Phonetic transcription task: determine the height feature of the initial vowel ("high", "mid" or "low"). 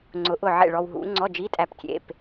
high